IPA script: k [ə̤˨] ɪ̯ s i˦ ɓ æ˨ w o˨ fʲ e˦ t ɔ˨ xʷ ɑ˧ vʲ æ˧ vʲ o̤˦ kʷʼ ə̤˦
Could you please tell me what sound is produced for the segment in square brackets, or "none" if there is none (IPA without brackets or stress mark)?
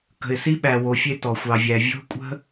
ə̤˨